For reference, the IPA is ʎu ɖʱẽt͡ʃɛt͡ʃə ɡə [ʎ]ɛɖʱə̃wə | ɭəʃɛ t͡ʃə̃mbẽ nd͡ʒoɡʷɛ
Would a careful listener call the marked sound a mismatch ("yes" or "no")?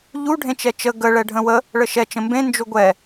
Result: yes